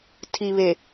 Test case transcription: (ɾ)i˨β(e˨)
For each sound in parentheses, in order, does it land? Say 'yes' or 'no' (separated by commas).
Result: no, yes